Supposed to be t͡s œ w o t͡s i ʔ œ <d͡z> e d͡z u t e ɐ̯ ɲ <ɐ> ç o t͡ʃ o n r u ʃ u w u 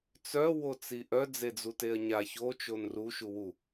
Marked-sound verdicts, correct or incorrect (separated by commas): correct, incorrect